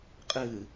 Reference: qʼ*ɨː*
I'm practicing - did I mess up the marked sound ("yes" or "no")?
no